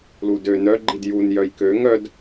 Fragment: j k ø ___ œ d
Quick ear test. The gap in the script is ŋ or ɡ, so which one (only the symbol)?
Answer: ŋ